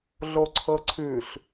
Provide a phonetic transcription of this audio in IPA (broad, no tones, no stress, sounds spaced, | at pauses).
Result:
ɮ o ǀʰ ɤ ǀʰ ʉ ɬ